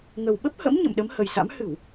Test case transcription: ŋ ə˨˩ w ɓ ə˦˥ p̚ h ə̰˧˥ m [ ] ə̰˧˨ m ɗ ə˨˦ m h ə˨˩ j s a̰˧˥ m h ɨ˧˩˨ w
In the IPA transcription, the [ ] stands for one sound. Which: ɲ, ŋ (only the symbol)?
ɲ